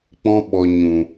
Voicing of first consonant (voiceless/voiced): voiceless